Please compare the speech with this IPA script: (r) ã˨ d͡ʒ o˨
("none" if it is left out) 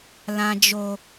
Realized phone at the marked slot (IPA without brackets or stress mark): l